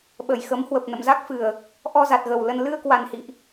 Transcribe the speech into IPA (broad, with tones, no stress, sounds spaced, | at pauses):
ɓ ə˧˩ j x ə˨˦ m h w ə˨˩ p̚ n ə̰˧˨ m z a˦˥ k̚ f ɨ˨˩ ə̯ | ʔ ɔ˧ z a˨˩ t̚ ɣ ə˨˩ w l ə˧ n l ɨ˧ ə̯ k w a˨˩ n h ḭ˧˨ ʔ